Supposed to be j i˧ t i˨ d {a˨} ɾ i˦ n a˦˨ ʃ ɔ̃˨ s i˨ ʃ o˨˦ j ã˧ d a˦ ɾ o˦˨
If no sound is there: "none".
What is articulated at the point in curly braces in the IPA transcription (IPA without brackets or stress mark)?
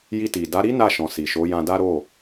a˨˦